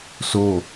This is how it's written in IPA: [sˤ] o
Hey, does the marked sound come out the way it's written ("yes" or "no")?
no